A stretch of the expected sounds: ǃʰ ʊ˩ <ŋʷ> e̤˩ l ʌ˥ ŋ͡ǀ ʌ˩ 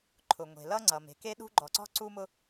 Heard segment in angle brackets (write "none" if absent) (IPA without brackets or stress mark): ŋʷ